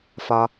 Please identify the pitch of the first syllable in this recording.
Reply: low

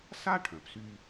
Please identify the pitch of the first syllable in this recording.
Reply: high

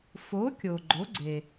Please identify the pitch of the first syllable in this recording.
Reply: rising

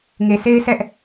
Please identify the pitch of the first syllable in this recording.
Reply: low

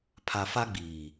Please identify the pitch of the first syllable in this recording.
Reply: low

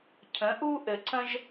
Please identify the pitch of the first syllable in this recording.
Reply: rising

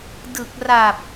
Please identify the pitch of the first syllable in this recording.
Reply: low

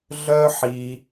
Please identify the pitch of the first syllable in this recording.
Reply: high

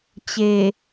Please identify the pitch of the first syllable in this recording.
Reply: low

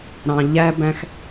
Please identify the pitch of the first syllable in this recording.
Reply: low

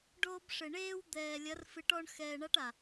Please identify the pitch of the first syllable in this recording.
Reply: high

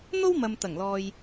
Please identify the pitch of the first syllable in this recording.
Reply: high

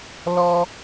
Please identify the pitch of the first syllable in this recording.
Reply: high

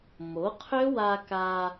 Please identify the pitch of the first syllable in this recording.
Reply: rising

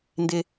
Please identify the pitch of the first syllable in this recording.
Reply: high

